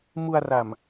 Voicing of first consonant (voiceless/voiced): voiced